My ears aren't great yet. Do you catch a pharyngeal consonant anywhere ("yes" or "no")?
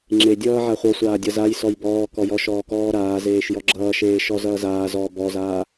yes